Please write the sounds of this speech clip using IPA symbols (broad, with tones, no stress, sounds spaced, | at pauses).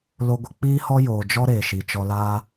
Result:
l o˧ ɡʷ ə˧ k͡p iː˦ h ɔ˦ j oː˨ d͡ʒ ɔ˦ ɾ eː˨ ʃ i˨ t͡ʃ ɔ˧ l aː˦